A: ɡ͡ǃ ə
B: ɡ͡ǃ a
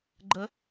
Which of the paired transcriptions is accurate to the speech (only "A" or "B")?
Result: A